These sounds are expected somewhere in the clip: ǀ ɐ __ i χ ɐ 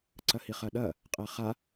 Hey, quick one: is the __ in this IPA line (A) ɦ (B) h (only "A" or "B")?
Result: B